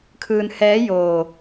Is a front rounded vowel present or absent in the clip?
absent